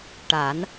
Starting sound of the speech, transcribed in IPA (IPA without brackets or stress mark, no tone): ʈ